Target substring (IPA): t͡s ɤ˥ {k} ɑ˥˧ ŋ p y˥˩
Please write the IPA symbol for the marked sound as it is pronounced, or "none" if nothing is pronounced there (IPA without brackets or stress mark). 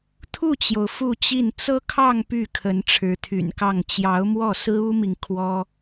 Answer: kʰ